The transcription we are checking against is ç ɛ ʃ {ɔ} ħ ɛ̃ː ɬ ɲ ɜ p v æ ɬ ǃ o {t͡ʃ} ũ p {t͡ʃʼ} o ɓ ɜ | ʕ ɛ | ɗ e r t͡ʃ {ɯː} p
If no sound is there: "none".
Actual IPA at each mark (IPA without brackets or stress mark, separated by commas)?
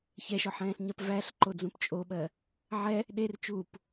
ɔ, d͡z, t͡ʃʼ, uː